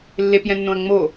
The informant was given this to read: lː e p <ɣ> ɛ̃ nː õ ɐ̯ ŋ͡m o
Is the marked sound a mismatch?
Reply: yes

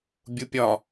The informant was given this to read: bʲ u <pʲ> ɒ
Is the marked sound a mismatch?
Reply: no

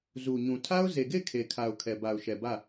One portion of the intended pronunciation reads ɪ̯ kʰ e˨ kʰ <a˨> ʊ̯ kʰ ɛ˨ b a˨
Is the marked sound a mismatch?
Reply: no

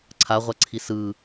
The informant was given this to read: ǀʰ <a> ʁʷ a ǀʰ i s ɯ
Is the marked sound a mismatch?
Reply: no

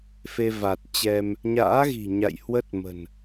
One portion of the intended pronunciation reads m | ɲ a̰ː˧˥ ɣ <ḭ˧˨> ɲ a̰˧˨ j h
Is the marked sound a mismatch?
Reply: yes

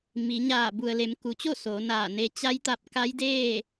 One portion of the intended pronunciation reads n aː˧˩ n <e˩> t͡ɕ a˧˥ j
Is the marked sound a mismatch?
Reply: yes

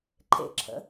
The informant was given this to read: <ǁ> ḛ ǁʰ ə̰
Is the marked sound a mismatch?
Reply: yes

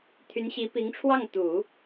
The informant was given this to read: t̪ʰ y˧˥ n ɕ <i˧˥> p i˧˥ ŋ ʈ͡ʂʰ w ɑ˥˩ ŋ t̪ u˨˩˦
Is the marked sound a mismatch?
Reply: no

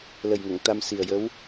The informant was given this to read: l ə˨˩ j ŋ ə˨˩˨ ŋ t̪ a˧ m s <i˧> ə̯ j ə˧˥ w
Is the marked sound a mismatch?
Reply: yes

